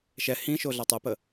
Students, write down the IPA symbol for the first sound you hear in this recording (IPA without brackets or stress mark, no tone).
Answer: ʃ